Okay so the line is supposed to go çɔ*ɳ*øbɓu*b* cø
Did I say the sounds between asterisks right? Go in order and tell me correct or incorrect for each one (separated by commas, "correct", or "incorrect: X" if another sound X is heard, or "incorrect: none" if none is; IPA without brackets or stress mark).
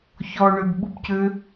correct, correct